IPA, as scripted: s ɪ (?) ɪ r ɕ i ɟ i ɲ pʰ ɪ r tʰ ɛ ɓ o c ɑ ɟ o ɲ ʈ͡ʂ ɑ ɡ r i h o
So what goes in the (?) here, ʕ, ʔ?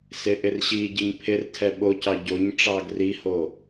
ʔ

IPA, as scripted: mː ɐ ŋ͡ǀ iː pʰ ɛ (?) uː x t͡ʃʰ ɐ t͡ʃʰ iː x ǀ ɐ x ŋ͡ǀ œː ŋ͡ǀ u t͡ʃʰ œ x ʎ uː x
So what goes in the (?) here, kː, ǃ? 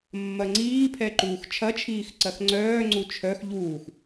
ǃ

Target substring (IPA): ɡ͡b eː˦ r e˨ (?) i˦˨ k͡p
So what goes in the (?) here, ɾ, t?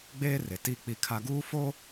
t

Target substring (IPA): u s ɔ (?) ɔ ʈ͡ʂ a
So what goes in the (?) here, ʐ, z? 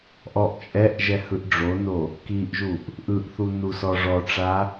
ʐ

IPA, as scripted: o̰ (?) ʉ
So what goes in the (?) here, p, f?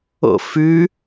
f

